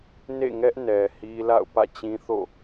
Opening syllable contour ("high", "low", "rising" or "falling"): falling